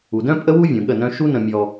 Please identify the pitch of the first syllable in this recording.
low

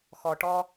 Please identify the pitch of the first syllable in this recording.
low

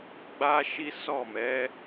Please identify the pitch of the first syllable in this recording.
high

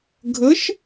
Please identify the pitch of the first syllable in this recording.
rising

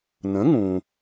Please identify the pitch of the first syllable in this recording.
rising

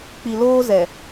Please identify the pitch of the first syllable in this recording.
low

